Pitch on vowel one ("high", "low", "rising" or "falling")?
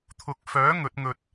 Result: low